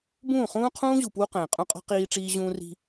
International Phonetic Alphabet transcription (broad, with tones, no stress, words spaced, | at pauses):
bũː˦˨χũː˦qʰũː˦ʑu˨ pwu˦ qɛ̃ː˨qʼũ˦qʼɔ̤˦ qiː˦ʈ͡ʂiː˦ʑũː˦ri̤˦